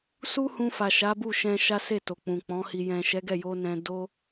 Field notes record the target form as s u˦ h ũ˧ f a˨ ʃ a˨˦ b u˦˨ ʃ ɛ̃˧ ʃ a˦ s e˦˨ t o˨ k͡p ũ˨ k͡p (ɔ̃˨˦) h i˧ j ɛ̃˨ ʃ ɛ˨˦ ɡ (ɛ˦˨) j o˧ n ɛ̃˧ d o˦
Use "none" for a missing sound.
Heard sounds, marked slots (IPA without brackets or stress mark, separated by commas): ɔ̃˨˦, ɛ˦˨